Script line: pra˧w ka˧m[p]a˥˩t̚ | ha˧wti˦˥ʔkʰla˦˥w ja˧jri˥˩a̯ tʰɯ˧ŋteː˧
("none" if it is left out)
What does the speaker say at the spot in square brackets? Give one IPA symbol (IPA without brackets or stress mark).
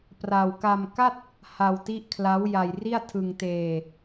k